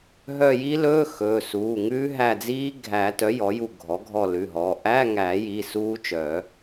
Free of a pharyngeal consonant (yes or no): yes